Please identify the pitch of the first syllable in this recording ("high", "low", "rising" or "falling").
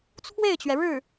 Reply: falling